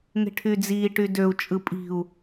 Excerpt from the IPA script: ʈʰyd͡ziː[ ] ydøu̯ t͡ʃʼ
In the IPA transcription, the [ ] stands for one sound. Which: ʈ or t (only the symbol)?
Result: ʈ